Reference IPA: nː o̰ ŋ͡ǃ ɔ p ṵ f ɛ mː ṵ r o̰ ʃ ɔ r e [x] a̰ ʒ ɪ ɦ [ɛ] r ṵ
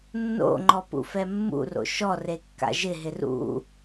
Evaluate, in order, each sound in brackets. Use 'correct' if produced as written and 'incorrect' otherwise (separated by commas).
incorrect, incorrect